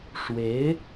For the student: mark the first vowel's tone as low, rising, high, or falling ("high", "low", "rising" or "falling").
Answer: rising